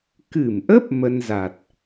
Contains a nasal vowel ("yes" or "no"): no